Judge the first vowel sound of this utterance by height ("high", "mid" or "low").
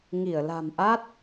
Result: high